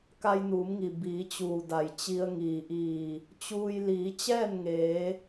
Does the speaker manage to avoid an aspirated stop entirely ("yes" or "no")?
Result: yes